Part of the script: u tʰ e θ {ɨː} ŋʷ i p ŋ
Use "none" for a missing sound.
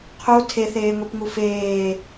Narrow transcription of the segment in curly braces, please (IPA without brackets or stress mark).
eː